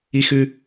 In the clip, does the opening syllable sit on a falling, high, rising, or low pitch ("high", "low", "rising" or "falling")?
high